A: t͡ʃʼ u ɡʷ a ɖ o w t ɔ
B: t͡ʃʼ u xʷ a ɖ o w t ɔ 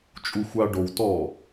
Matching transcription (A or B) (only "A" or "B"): B